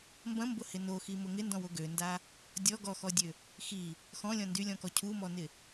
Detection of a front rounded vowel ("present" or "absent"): present